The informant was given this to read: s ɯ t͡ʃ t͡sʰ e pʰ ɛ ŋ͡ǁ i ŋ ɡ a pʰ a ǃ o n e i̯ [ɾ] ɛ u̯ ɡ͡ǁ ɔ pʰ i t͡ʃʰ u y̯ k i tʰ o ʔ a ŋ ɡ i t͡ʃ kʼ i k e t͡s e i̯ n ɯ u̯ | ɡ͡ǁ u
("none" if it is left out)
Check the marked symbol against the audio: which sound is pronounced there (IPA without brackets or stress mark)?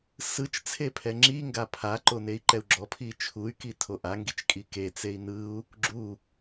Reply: ǃ